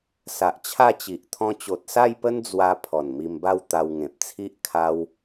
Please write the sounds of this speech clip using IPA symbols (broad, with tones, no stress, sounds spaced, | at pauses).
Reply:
s a˨ ʔ t͡ɕʰ a˥˧ t͡ɕ i˨ ʔ t̪ʰ ɔ̃˧ t͡ɕ o˨ t̚ s a˥˧ j p ə˦ n d͡z w a˧ pʰ ɔ˨˩ n m i˧ m b a˥˧ w t̪ a˧ w ŋ ẽ˨ p̚ t͡sʰ i˦ ʔ kʰ a˦ w